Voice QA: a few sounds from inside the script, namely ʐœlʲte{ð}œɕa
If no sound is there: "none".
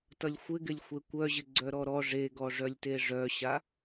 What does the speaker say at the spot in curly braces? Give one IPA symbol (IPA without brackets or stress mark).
ʐ